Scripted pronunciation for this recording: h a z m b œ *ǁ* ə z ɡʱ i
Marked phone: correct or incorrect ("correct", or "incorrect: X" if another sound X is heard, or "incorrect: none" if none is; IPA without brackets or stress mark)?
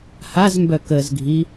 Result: incorrect: k